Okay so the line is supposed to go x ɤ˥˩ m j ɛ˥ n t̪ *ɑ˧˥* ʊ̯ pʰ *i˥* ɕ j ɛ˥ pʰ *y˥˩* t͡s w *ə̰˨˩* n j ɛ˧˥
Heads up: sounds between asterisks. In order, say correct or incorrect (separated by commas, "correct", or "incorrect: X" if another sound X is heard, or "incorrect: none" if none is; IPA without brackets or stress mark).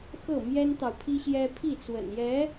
incorrect: ɑ˨, correct, incorrect: i˥˩, correct